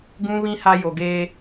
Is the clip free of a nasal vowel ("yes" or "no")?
no